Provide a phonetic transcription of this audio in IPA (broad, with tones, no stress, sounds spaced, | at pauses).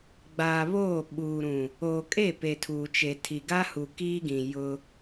ɡ͡b aː˨ β oː˦˨ ɓ uː˨ ɾ ũ˨ | oː˨ kʼ e˦˨ p e˨ tʰ uː˨ t͡ʃ e˨ tʰ i˨ ɡ a˦ h u˨ k iː˦ ɡ ĩ˨ j ʊ˦